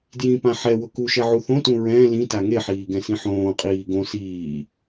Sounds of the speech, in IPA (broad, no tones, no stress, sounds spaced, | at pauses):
d j ĩ p ã ħ ɛ w ʊ k u ʃ ɛ ʕ u θ õ t ũ ɹ ɛ̃ l ĩ t a ŋ e ħ iː ɡ ɛ̃ s ĩ ħ õː qʼ iː ɡ õ s iː